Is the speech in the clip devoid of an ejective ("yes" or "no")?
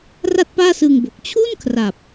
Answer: yes